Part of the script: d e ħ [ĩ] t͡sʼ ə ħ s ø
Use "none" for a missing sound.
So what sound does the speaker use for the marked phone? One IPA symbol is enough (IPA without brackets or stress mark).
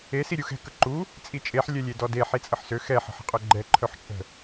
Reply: i